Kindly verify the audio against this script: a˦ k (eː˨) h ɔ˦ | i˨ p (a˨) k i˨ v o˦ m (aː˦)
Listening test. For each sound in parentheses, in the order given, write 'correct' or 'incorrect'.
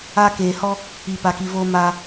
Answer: correct, correct, correct

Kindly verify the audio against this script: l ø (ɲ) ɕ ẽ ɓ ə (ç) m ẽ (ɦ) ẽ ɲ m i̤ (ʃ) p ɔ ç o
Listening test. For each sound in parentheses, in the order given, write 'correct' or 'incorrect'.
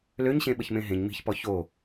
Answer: correct, correct, correct, incorrect

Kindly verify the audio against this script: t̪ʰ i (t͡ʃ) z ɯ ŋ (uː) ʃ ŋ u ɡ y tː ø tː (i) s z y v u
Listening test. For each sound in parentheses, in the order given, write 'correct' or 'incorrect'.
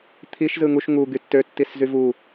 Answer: incorrect, incorrect, correct

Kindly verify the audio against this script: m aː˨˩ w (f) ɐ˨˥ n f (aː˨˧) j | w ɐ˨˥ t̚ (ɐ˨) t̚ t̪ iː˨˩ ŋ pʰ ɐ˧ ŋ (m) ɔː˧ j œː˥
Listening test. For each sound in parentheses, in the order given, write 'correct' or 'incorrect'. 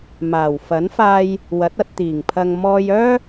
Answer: correct, incorrect, incorrect, correct

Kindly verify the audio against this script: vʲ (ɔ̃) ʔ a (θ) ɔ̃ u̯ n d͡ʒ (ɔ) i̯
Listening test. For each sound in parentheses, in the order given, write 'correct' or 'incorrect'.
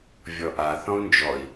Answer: incorrect, correct, correct

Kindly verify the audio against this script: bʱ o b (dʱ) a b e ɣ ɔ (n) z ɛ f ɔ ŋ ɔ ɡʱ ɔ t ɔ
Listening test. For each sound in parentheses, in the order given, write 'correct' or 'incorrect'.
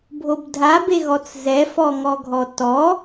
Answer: correct, incorrect

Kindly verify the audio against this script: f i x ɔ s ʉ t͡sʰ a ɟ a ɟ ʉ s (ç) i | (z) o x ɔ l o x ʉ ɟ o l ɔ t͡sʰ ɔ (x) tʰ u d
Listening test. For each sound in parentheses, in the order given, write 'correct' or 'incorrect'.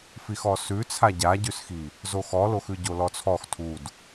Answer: incorrect, correct, correct

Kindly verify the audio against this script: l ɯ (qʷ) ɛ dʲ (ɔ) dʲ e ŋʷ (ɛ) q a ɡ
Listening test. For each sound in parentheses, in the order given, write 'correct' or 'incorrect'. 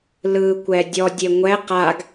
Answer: incorrect, correct, correct

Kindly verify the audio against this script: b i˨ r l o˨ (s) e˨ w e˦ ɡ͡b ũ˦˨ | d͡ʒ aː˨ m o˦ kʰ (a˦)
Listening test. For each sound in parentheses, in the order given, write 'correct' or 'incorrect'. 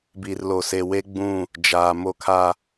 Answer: correct, correct

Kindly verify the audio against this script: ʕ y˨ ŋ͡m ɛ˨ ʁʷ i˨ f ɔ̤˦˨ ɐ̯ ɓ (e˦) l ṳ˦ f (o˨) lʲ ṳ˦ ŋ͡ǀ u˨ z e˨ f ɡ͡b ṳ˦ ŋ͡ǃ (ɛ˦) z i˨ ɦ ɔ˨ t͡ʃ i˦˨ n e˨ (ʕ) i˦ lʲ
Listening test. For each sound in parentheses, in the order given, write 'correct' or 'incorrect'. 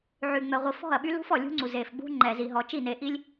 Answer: incorrect, incorrect, incorrect, incorrect

